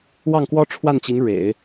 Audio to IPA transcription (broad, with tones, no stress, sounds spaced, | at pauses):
w ɑ˥˩ ŋ k w ɔ˥ ʈ͡ʂʰ w a˥˩ n t͡ɕ i˧˥ ŋ ɻ ḛ˨˩˦ ɪ̯